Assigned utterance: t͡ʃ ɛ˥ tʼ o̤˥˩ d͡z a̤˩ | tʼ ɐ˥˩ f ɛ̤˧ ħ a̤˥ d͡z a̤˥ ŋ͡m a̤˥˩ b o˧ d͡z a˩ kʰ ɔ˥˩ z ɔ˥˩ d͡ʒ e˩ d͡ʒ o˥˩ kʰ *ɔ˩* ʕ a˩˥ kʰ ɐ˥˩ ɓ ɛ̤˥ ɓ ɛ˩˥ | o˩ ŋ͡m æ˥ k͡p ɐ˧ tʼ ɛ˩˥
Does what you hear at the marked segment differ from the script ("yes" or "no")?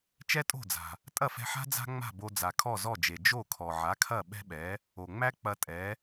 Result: no